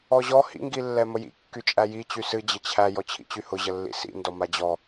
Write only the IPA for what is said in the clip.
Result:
ɔ ʑ ɔ h ḭ ŋ ɡ i lː ɛ m ə j ḭ kː y t͡ʃʼ æ j i t͡ɕ y s ɨ d͡ʑ ə t͡ɕʰ æ j ɔ t͡ɕʰ ḭ t͡ɕ y h ʊ ʑ ə lː ḭ s ḭ n d ɔ m a d͡ʑ ɔ

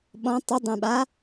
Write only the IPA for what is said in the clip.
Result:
ɓ ɔ̃ tˤ u dˤ ɛ̃ ɓ a

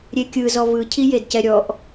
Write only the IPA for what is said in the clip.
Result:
ɾʲ e kʲ ɯ z ɔ v ɯ cʰ i j e d c ɛ ɾʲ ɔ ʔ

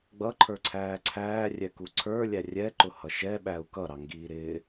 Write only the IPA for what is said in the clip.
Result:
ɡ͡b ʌ ǃʰ ə˞ ǀʰ æː ǀʰ æː rʲ ɛ k u ǀʰ ə˞ lʲ æ rʲ ɛ ǃ ʊ h ʌ ʃ ɛ ɓ æ u̯ k ʌ ɾ ɑ ŋ ɡ iː ɾ ɪ

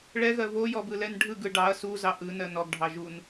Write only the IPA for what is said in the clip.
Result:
ɭ ɛ ɣ ɜ v o j ɔ b ɯ l ɛ n ɖʱ ɯ ɡ ɯ ɖ ɑ ɐ̯ s u z ɑ ʔ ɯ n ɜ n ɔ ɡ ɖʱ ɑ ʒ u n

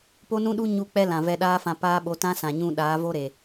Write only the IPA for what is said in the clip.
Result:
p o˦ n ũ˦ ɗ u˦ ɲ u˦˨ k͡p ɛ˦ l ã˨ v ɛ˧ ɗ aː˦ f ã˧ p aː˦ ɓ o˨˦ t ã˦ s ã˨ ɲ ũ˧ ɗ aː˨˦ v o˦ ɾ e˨

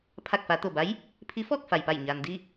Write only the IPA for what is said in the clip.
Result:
pʰ a˧˩ k̚ f a˩˧ t̪ o˧˩ b a˧˥ j | pʰ i˧˥ f ɔː˥˨ k̚ f a˩ j p a˧˩ j ɲ aː˩ n d i˥˨

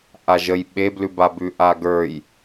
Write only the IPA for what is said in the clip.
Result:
ʔ a ʒ ə j ɓ e b l ʉ b a b ʉ ʔ a ɡ ə˞ j

